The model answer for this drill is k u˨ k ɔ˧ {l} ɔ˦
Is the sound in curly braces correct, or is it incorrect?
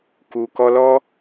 correct